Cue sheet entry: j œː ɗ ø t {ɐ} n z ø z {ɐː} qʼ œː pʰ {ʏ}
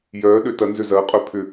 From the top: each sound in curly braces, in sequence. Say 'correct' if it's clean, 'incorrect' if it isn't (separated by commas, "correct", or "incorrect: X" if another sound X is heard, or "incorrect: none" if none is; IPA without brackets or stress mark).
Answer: correct, correct, correct